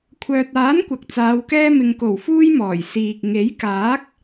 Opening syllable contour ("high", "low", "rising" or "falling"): low